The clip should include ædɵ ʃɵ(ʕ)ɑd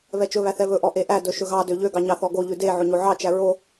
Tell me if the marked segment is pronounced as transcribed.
no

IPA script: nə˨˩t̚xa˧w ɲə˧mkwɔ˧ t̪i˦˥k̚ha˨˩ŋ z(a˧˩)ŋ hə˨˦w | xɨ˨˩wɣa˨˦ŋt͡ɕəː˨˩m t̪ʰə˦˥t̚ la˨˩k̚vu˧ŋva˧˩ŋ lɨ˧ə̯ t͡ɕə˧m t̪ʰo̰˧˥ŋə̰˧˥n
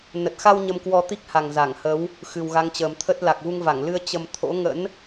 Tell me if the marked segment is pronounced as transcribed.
yes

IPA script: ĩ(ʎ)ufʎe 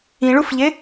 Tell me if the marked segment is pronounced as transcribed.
no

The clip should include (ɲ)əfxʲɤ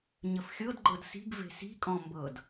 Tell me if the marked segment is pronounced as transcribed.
yes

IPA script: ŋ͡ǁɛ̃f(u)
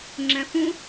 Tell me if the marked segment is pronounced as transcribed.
no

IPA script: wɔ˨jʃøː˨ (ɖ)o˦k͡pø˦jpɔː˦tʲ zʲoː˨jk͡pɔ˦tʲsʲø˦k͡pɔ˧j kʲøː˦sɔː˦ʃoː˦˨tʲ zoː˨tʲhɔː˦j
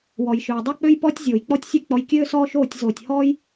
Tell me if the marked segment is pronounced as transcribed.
no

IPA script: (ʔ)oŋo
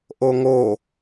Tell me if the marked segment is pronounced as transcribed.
yes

